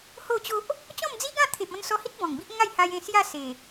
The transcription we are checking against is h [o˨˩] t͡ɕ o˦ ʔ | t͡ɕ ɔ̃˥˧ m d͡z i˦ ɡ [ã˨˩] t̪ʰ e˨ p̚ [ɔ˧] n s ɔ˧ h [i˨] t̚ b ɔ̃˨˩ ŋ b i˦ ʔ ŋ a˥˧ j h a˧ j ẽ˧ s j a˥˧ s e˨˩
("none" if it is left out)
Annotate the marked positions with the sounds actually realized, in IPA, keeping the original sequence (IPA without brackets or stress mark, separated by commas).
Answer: o˥˧, ã˥˧, ɔ̃˧, i˦